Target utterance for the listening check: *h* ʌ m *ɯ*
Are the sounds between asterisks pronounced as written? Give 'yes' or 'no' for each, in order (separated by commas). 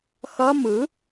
no, yes